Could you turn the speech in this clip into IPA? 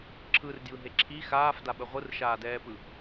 ǁʰɯrdjɯɦe ǁʰi xaːfdaɓə ʁʷɯrʃaːdɛːpɯ

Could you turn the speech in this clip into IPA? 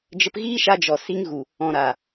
d͡ʒə˧pɣiː˦ʃa˧d͡ʒɔ˨ si˧ŋɣu˨ | ɔ̃˨ ɾa˨

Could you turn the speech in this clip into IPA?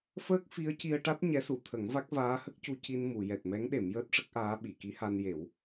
fəː˦˥k̚ fi˧˥ə̯ci˧ə̯ʈa˦˥t̚ ɲɛ˧˥su˨˩˨t̪ʰə˨˩˦ŋva˦˥k̚ vaː˧˥hə˦˥k̚cu˧ ci˧nmu˨˩˨ jɛ˨˩t̚mɛ˧˥ŋ ɗe˨˩˦mjəː˦˥t̚ʂə˦˥k̚ʔaː˧˥ ɓi˨˩˨ki˧˥ha˧nje˨˩˦w

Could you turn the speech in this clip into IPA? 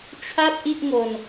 t͡ɕʰa˥˩p̚ʔi˥˩ʔŋo˧n

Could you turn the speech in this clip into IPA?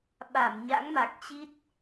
ɓa˧˩mɲa̰˧˥ŋma˨˩k̚t͡ɕi˦˥t̚

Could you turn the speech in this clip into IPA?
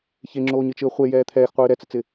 çeŋ͡ǁoːɲɨt͡ʃɨə̯ χʷe jɛːt̪ʰɛːxqʷɨː ɾɛt͡sɨt͡sɪ

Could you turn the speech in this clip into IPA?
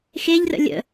xeʎrə̰ lʲə̰

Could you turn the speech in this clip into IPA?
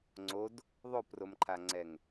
ŋ͡ǀod | ðˤopromǃʰaŋ͡ǀɛŋ

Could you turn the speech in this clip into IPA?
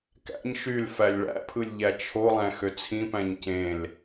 kæ̰ɲ ʃyl fælʲɭæ̰pʰɯlʲ ʎæt͡ʃʰolˠæ̃ xøt͡sʰĩpæ̃ɲ cẽl

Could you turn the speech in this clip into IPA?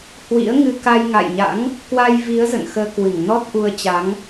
hwḭ˧˥ə̯ŋɨ˧ ka˧jŋa̰˧˨jɲa̰˧˥ŋ | kwa˧jvi˨˦ə̯ zə̰˧˨nxəː˧kwɨ˧˩ŋ nɔ˦˥t̚ʔu˧ə̯ t͡ɕa˨˦ŋ

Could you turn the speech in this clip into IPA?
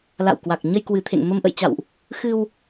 la̰˧˨wkwa˨˩k̚ ɲə˧jkwɨ˨˩t̪ʰḛ˧˨ŋ mə˧mʔə̰˧˨jt͡ɕa̰˧˨wʔ | xɨ˧w

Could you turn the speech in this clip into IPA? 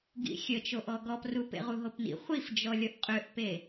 ɡḭxʲət͡ʃoʔ ɔɡɔpru pḛʁuɦopnḭ χʷifd͡ʒɔ lʲɔʔqʼøʔpe

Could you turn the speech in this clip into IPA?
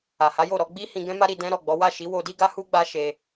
a˨ha˨˦jo˦˨ɾɔ˧ ɡ͡bi˦ hĩ˧ɡɛ̃˦ma˦ ɾi˧dɛ̃˦ɾɔ˦˨ɡ͡bɔ˨˦ wa˦˨ʃi˨˦wo˧di˦ ɡa˦hu˦ ɡ͡ba˦ʃe˧

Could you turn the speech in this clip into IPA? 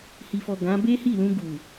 hi˨fɔ˨ ɡã˨˦ be˦hi˦˨lũ˧ ɡu˨

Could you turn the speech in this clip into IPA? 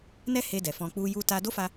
nɛ˦he˧dɛ˨ fɔ̃˧k͡pu˦ ju˧ ta˧do˦fa˧

